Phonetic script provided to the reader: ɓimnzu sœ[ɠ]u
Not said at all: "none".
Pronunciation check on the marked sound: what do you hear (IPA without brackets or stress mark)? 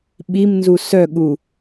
ɠ